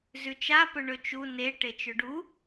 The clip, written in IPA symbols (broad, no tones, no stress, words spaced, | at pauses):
zʉt͡ʃa pɵɳɵt͡ʃu ne ʈet͡ʃɵɖu